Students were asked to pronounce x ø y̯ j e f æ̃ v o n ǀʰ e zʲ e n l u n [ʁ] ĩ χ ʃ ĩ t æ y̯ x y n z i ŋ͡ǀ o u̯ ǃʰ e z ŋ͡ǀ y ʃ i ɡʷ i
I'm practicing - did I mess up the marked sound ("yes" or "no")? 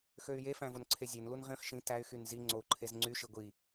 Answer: no